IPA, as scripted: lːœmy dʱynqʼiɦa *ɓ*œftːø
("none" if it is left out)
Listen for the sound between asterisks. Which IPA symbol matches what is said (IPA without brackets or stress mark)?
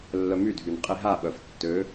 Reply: ɓ